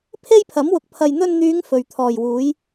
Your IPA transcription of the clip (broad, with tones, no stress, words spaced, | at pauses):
pʰe˥jpʰɐ˨˥mwʊ˨k̚ pʰɐ˧j n̪ɵ˧nn̪yː˨˧ŋ fɵ˨ɥ t̪ʰɔː˨˩jwuː˨˥j